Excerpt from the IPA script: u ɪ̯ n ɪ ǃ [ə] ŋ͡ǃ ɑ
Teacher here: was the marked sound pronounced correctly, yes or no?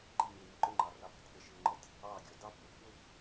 no